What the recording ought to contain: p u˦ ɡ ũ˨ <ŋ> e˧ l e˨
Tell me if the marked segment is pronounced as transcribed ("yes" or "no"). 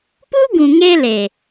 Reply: yes